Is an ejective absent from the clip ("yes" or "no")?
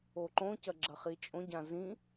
no